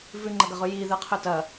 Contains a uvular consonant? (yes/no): yes